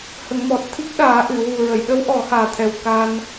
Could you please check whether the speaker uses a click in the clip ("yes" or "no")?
no